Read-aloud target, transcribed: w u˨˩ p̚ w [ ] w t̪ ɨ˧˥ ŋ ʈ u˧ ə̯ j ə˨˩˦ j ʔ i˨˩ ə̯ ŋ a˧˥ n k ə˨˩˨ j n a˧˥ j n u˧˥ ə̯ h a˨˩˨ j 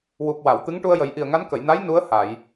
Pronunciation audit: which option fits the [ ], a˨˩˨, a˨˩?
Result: a˨˩˨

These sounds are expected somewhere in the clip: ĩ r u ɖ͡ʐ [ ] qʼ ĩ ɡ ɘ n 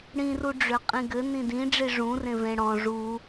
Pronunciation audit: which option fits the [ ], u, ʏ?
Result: ʏ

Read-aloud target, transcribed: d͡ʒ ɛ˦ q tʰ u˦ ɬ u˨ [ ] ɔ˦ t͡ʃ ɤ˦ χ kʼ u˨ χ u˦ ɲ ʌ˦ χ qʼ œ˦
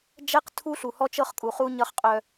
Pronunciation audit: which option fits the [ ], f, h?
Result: h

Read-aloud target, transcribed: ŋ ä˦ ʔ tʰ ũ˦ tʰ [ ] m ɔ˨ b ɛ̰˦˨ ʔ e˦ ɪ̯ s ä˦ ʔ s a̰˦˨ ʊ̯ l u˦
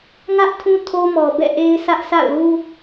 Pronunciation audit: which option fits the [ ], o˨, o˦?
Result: o˦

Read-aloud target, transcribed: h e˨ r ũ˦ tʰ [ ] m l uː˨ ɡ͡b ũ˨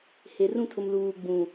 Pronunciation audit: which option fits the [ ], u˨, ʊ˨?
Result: ʊ˨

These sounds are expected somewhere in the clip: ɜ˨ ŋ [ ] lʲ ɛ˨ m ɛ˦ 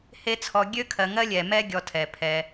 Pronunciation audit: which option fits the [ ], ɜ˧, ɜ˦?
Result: ɜ˦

